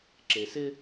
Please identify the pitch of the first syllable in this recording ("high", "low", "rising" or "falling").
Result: low